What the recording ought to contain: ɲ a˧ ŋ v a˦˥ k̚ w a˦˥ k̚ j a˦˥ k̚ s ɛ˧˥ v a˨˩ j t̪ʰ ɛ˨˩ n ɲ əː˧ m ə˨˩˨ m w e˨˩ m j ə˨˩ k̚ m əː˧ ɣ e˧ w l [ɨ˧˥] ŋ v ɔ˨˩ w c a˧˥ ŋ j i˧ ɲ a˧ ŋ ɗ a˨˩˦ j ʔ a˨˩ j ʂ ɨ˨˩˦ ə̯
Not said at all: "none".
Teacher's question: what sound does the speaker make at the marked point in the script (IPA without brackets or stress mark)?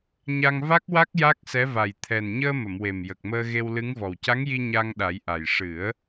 ɨ˧˥